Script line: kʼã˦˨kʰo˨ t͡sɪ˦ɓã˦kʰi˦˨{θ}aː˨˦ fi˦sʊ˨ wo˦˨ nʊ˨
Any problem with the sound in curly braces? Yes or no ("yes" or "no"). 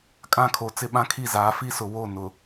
yes